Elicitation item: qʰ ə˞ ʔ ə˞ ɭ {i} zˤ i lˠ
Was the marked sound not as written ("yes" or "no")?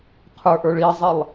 no